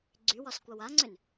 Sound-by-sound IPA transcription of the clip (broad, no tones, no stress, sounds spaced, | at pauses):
ɡ͡ǀ y w ɒ s kʷ a w a ŋ͡ǀ ʏ n